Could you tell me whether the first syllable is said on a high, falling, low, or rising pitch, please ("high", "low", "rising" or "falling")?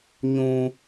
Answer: high